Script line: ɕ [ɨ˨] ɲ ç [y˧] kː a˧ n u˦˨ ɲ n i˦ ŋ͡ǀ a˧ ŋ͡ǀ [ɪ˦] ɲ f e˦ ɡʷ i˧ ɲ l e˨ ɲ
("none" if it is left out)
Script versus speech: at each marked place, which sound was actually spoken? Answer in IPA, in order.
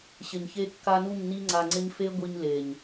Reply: ɪ˨, e˧, ɪ˦

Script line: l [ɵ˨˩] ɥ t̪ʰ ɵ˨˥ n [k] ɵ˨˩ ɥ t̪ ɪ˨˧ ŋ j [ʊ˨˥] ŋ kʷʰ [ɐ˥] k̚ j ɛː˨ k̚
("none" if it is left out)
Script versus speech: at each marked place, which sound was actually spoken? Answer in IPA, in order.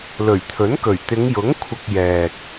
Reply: ɵ˨˩, k, ʊ˨˥, ɐ˨

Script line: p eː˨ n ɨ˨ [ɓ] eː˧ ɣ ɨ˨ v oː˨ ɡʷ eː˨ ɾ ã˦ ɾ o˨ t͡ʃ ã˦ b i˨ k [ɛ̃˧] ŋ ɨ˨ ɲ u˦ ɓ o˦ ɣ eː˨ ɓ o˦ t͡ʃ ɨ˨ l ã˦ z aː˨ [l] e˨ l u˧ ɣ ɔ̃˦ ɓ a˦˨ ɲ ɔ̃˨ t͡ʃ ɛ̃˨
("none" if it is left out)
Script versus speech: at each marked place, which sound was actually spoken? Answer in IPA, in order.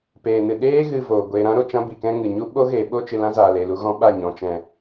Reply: ɗ, ɛ̃˦, l

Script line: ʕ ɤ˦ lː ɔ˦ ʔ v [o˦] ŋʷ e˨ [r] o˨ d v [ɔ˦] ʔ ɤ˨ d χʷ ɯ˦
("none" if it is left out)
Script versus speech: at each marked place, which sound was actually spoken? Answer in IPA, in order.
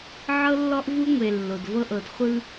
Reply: u˦, lː, ɤ˦

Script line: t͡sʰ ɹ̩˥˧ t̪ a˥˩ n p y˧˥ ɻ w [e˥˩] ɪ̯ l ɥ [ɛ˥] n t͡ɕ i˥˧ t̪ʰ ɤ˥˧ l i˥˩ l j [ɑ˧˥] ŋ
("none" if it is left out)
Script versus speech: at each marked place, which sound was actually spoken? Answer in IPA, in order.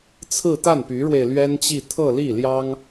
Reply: e˧, ɛ˥, ɑ˥

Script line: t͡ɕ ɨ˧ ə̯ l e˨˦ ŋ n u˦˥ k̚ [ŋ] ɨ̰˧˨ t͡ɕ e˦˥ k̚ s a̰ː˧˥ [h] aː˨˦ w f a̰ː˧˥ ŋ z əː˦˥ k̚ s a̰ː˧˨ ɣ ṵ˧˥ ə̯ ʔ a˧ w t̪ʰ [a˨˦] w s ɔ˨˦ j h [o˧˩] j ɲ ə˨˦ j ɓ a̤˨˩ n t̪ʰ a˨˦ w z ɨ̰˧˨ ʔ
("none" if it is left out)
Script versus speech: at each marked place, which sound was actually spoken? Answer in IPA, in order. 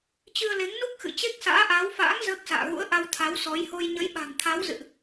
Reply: x, ʔ, a˨˦, o˧

